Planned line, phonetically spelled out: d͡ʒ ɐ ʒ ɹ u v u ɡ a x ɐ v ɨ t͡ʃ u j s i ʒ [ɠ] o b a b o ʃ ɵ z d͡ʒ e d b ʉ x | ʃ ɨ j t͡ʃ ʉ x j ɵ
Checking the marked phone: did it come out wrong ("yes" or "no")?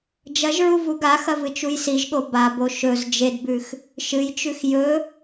no